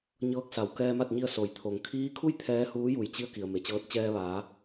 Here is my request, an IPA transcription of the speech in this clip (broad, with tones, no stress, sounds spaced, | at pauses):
ɲ ɤː˧˥ k̚ s a˩ w k ɛː˧ m a˥˨ t̚ ɲ i˧ ə̯ s o˩˧ j t̪ʰ o˩ ŋ kʰ iː˧˥ kʰ u˥˨ j t̪ʰ ɛː˧˥ h uː˧˥ j u˩ j t͡ɕ i˧ ə̯ k i˩ ə̯ m e˩˧ t͡ɕ ɤː˧˥ t̚ t͡ɕ ɛː˧ ʋ aː˩˧